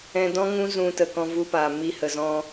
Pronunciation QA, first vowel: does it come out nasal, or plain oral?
nasal